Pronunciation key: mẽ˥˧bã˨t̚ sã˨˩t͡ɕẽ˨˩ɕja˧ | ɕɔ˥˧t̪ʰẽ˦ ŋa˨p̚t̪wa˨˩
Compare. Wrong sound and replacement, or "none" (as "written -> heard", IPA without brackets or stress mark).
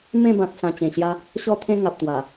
none